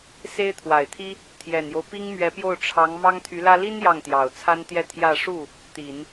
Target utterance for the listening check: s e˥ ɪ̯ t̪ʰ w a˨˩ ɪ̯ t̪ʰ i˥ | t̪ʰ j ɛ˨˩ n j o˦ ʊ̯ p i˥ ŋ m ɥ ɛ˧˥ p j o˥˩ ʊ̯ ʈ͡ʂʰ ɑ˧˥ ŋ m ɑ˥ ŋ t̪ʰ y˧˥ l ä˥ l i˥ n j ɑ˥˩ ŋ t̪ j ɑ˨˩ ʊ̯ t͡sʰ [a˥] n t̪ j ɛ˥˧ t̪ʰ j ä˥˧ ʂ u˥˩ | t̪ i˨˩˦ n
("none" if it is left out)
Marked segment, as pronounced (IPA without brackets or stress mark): a˥